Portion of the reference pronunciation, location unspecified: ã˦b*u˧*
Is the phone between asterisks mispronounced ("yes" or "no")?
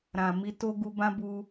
no